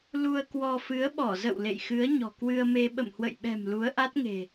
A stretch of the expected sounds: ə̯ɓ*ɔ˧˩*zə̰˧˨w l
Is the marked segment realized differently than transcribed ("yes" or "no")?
no